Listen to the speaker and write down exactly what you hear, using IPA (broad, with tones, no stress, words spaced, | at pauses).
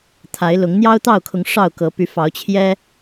t̪ʰa˨˦ɪ̯lʊ˨˦ŋ n̪jɑ˦ʊ̯t̪ɑ˥˨ʊ̯kʰʊ˨˦ŋ ʂɑ˥˨ʊ̯kɤ˨˦py˨˦ fɑ˨˦ʊ̯t͡ɕʰjɛ˦